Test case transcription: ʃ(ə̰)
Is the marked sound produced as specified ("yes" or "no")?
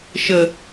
no